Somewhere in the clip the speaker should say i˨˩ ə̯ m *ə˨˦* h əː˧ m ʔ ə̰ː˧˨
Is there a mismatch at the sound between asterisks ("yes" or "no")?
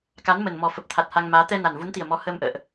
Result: yes